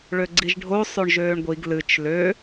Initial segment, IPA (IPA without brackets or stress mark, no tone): ɭ